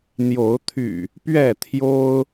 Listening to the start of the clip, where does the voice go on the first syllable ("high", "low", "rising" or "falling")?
rising